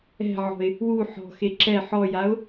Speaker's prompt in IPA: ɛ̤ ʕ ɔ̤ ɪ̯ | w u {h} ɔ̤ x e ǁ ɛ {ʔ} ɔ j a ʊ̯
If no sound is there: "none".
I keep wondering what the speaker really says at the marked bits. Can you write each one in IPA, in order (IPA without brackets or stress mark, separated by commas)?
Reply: ħ, ħ